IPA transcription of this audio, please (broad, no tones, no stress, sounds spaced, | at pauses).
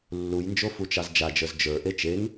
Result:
lː u j n d͡ʒ o f u t͡ʃ ɑ z d͡ʒ a d͡ʒ ə˞ z d͡ʒ ə˞ ʔ e t͡ʃ e ŋ